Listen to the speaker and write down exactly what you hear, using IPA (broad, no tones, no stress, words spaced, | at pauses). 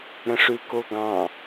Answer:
ɾə̃ʂʉkoɡɑ̃